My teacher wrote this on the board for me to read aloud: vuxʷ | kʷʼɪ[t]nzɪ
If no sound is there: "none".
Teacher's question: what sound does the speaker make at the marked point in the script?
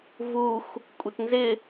t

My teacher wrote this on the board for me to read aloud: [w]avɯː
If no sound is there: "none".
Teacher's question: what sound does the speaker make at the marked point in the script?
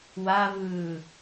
w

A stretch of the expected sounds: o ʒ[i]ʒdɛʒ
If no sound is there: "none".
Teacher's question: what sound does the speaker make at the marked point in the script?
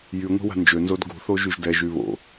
y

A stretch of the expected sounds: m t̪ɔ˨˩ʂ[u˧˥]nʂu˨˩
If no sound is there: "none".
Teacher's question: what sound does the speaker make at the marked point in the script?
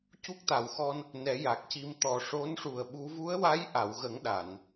o˧˥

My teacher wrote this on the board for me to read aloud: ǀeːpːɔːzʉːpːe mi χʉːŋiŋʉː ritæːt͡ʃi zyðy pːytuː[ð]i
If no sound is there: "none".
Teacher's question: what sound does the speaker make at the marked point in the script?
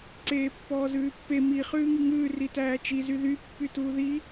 ð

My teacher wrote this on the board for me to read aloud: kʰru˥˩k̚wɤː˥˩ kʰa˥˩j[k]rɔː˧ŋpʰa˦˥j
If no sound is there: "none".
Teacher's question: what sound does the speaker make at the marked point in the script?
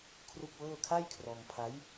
kʰ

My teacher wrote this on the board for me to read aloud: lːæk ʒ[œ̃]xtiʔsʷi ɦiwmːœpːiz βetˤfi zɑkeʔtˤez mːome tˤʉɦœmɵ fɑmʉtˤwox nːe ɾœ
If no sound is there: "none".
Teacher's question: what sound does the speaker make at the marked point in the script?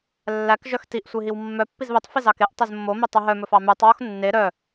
œ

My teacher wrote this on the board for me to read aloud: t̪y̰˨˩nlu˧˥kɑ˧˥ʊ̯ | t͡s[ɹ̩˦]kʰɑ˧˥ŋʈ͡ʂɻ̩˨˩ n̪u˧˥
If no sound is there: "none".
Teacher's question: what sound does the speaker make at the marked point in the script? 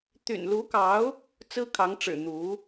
ɹ̩˥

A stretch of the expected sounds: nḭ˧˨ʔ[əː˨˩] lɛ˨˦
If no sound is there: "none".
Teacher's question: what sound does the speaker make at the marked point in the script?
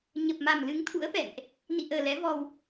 əː˨˩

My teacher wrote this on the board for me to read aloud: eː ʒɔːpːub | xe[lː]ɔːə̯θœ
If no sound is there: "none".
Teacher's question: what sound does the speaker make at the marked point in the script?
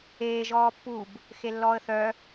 lː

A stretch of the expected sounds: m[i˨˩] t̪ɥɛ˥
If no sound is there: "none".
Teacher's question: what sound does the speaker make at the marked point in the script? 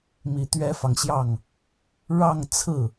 i˨˩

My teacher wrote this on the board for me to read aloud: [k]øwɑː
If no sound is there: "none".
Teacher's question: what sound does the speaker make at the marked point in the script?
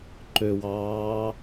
ǃ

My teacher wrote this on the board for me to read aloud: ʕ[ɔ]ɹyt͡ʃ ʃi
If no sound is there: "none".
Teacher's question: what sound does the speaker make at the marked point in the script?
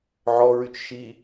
ɔ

